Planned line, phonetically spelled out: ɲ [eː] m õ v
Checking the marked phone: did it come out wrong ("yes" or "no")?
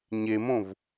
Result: yes